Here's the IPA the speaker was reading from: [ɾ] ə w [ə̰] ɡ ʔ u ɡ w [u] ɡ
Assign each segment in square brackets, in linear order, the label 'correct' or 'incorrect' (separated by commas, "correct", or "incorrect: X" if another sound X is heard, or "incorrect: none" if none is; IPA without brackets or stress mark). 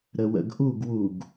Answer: correct, correct, correct